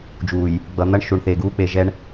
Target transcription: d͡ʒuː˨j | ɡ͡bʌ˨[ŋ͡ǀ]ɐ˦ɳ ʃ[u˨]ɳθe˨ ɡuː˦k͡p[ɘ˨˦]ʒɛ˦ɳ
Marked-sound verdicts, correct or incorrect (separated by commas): incorrect, correct, incorrect